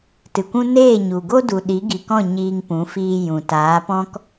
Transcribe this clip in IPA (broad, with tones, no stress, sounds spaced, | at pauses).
t ɨ˨ kʷ ũ˦ n eː˦˨ ɲ u˨ ɡ o˦ d u˨ ɗ i˨˦ ɡ i˨ k ɔ̃˦˨ ɲ iː˧ ŋ p ũ˨˦ f iː˧ j ũ˨ t aː˨˦ p ɔ̃˦ k